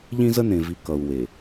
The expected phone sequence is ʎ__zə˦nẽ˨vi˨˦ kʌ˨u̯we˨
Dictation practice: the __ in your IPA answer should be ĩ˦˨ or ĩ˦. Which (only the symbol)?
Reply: ĩ˦